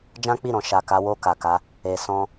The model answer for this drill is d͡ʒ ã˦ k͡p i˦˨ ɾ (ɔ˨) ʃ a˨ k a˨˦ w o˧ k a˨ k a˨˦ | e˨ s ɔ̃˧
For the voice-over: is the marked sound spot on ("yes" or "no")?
no